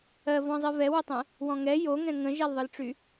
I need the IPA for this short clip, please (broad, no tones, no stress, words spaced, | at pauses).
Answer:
ɜvɔ̃zˤɨ vɛwotˤɛ̃ | wɔ̃ŋɛ joŋɛ̃ ŋə̃ʒɛlðˤɯlʈ͡ʂy